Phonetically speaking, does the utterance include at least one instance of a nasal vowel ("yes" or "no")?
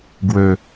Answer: no